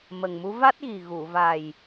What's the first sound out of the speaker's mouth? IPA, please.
m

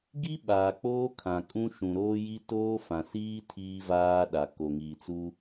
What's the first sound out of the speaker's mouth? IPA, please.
ɡ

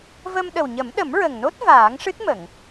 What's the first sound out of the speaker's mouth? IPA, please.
v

